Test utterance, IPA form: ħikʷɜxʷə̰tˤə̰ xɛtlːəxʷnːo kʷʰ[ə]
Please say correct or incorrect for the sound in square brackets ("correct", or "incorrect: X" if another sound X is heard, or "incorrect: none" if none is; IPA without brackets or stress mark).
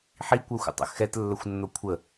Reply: correct